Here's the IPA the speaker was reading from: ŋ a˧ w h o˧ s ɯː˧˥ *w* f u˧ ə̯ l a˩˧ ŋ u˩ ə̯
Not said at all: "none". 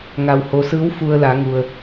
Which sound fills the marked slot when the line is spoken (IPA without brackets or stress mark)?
w